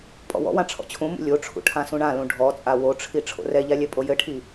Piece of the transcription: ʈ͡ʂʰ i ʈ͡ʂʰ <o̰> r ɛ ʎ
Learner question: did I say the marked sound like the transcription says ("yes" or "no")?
yes